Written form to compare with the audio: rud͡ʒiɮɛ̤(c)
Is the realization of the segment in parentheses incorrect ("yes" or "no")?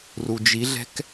yes